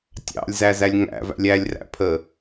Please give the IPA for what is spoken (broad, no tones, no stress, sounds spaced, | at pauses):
tʲ ɑ̰ lʲ z æ z æ lʲ ŋ æ̰ v æ̰ lʲ æ lʲ r æ̰ pʰ ə